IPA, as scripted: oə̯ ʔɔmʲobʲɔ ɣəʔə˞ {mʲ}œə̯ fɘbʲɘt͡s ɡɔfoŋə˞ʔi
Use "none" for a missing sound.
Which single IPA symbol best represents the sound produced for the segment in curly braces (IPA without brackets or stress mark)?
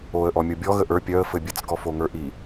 pʲ